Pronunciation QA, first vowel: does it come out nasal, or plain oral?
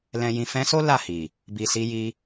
nasal